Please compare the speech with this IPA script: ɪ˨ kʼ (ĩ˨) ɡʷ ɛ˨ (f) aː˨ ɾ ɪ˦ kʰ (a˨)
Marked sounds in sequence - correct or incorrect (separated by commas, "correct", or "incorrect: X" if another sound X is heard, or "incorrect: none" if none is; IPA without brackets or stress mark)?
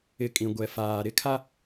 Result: correct, correct, incorrect: a˦